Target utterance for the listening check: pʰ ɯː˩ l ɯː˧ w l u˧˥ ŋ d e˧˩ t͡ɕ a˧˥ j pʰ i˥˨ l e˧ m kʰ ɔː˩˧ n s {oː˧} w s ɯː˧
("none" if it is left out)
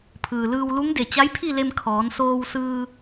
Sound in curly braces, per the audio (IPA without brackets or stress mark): oː˧